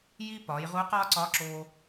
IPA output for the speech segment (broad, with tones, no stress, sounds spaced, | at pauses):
j i˧ p ɒː˩˧ j ʁ u˧˥ q ɒː˥ ǀ ɒː˧˥ ǁ oː˧